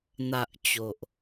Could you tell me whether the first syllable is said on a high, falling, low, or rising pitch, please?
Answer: low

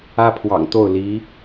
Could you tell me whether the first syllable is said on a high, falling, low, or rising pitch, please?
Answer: high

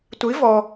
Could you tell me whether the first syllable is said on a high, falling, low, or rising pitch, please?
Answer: rising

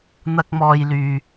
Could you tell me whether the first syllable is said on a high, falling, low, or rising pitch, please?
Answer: high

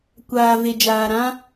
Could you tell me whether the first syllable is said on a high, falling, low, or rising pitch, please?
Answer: low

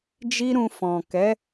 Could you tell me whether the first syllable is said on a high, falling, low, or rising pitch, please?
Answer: high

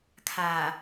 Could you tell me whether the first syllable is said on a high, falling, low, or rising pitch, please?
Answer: low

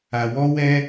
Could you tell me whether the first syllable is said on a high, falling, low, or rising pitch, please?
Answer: low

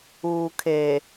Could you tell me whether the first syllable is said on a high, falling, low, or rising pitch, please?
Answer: low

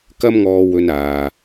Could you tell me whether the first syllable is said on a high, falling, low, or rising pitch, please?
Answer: high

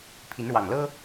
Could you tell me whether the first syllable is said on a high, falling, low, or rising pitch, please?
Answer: rising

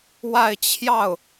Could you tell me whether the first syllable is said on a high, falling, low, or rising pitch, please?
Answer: falling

